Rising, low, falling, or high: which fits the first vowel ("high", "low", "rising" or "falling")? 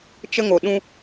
high